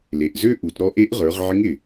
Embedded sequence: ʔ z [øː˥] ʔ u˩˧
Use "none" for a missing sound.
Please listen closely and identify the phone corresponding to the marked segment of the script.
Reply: ø˥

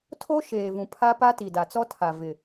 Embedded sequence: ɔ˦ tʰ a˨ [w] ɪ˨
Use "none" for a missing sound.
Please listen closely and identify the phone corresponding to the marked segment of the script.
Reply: v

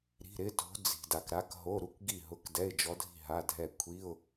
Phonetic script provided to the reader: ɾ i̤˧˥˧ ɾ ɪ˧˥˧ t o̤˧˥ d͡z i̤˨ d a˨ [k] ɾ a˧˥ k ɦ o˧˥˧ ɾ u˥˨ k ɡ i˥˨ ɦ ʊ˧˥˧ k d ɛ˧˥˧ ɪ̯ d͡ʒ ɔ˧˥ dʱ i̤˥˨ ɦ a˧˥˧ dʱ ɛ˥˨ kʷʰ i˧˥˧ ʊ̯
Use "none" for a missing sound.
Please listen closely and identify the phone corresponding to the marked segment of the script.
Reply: k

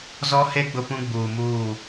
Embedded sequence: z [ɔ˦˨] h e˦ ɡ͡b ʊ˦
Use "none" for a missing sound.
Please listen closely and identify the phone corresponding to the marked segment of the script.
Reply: ɔ˦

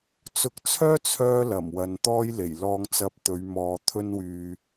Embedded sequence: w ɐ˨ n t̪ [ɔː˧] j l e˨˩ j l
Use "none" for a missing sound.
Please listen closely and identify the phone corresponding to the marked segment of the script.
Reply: ɔː˧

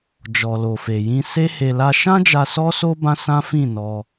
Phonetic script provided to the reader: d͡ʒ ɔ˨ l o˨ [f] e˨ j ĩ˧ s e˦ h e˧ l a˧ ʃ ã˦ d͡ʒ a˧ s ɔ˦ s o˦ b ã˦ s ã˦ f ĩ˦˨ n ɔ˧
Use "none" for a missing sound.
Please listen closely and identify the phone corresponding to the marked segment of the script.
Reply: f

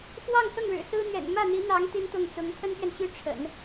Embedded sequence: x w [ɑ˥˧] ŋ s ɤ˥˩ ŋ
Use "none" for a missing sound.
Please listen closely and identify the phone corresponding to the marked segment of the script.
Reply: ɑ˥˧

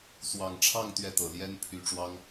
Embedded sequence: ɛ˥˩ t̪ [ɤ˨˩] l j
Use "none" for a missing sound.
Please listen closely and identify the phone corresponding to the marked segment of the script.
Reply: ɤ˨˩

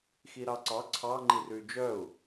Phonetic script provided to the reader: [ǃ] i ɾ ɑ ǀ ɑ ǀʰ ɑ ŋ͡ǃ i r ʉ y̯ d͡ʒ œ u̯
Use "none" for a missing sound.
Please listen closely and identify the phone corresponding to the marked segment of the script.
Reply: x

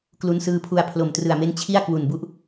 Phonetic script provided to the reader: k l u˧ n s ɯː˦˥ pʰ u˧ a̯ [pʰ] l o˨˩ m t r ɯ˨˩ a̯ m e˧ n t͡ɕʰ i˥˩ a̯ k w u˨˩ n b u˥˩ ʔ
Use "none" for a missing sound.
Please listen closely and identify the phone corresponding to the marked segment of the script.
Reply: pʰ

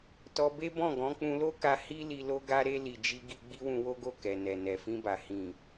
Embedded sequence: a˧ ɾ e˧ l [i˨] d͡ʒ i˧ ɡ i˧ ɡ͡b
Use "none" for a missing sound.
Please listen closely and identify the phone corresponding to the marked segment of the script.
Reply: i˨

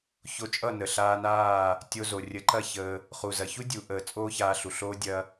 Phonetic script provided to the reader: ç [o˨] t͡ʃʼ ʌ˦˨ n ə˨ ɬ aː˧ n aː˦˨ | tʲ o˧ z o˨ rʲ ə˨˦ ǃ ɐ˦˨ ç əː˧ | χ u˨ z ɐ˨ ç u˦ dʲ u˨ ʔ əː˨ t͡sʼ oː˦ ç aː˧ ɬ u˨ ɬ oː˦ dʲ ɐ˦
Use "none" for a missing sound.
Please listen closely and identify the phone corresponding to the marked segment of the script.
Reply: o˧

